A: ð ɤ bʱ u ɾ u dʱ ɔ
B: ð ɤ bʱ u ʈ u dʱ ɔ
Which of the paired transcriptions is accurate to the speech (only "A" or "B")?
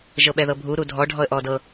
A